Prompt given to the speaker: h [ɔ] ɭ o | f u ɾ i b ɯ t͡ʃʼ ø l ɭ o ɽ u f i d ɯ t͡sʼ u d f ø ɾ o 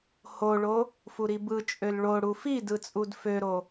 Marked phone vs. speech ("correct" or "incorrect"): incorrect